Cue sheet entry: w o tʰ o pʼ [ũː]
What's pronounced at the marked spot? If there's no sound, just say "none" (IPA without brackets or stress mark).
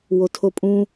ũ